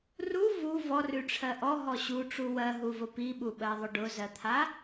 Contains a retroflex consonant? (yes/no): yes